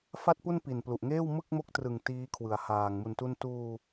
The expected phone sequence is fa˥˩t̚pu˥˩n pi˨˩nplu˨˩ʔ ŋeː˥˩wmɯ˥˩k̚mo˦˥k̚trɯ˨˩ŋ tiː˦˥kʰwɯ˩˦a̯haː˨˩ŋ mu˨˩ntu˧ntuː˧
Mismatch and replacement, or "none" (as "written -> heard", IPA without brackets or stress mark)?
none